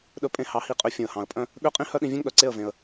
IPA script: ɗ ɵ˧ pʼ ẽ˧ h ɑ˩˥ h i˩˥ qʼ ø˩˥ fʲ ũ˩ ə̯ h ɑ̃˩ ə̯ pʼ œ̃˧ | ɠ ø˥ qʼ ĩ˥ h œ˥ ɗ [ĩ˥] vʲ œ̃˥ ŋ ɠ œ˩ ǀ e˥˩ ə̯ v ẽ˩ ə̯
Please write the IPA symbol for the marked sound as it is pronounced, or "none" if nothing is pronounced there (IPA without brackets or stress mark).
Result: ĩ˧